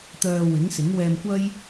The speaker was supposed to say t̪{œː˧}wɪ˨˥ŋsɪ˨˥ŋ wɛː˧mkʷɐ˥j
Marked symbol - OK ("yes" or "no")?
yes